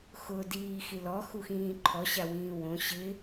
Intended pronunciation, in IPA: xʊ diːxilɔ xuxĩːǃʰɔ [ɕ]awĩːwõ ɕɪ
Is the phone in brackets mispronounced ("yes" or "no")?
no